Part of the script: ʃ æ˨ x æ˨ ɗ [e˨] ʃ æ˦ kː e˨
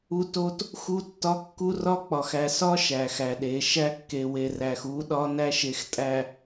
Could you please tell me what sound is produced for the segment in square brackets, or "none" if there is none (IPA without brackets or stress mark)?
e˨˦